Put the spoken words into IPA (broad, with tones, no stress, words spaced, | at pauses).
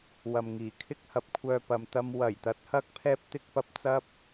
wɐ˨mŋiː˨˩kʰɪ˥k̚hɐ˨p̚ kʷʰœː˧pɐ˨m t̪ɐ˧m wɐ˨˩jt̪ɐ˨˥t̚hɐ˧k̚ pʰɛː˥p̚t̪ɪ˥k̚pɐ˧p̚ t͡sɐ˥p̚